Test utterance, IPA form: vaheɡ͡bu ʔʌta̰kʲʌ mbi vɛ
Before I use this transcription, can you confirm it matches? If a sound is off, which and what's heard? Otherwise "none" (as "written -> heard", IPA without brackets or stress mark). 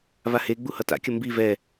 ʔ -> h